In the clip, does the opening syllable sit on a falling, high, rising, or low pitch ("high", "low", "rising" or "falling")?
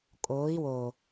rising